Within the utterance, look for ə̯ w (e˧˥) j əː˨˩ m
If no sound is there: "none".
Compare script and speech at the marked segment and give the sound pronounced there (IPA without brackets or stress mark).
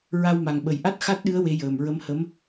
e˧˥